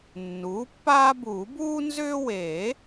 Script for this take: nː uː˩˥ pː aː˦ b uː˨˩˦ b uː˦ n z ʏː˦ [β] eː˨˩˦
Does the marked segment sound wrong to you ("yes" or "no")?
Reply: yes